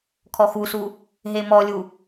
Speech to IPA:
kʰɔxusu | ɦemɔlʲu

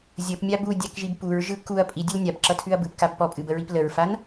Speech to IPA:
zʲəpmʲab udʲakʒib puɹʒɯ kuɐ̯ pʼidʲəl nʲabǁʌtʰʉɐ̯ bɯpkab pɔpʼɨbəɹip ləɹfan

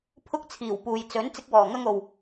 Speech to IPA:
pʰʊ˧k̚t͡sʰiː˨˩w puː˨jt͡sɵ˨˥n t͡sɪ˧k̚wɔː˨˩ŋɐ˧ŋo˨w

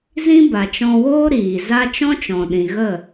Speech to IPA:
zĩ˦ ba˨t͡ʃɔ̃˧woː˦ ɾiː˨ za˦ t͡ʃɔ̃˦t͡ʃɔ̃˨ɗĩ˨ɣə˦˨

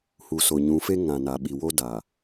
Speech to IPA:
hu˨so˨ɲũ˨˦fe˦ ŋã˨ na˨ɓi˨wo˦da˨

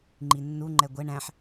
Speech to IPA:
ŋ͡ǃinːu ŋ͡ǃɛɡʷɛ ɳæ̃ħ

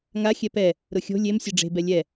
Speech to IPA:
ŋa xʲɛpɛ | ɾʊxʲo̤ lʲem sʲeɖ͡ʐe̤ bɛlʲɛ

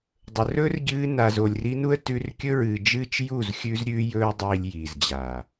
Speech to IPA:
dˤɵ˨rɵ˦rɟɨː˧ na˨zo˨lʲri˧nu˦ə̯ tʉ˧rkʲɵ˦ ɹɨː˨d͡ʒɨː˦t͡ʃ ju˦˨z xʲʉː˧zɾʲʉː˧jɵː˧dˤiː˨lʲ jiː˨zd͡ʑa˨

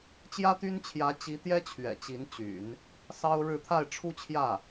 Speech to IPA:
t͡ɕjä˥t̪y˥nt͡ɕʰjä˧˥ t͡ɕi˧˥t̪jɛ˥ t͡ɕʰɥɛ̰˨˩t͡ɕi˧˥nt͡ɕy̰˨˩˦n | sɑ˥ʊ̯ɻɻ̩˥˧ t̪ʰa˥˩ɪ̯ʈ͡ʂʰu˥t͡ɕʰjä˥˩

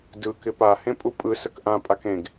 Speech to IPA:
dɯ kɪpa hẽpʼupʼɯ səkʔã pʼakẽɡ

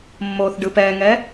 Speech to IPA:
mːoθ ɖɯpɛŋɛ

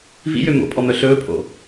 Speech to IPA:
vḭjø mo̰pʼɔmœ ɬɵːpʰo̰

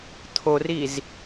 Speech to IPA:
t̪ʰoriz

